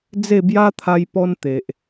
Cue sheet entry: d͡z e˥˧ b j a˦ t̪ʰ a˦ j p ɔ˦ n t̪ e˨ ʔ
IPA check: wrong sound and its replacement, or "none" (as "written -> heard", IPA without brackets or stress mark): none